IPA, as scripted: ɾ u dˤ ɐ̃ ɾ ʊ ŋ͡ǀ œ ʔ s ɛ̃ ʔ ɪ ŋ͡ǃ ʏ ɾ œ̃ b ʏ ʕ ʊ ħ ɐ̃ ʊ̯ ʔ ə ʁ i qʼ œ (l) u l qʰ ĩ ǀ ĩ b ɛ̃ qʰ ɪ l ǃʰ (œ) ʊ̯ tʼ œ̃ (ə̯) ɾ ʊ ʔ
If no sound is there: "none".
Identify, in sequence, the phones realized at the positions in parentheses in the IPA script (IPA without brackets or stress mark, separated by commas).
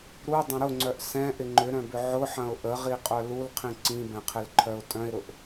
l, œ, ɪ̯